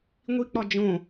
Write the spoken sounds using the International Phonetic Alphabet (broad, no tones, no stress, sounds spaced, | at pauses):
ŋʷ i k͡p ɒ d͡ʒ õ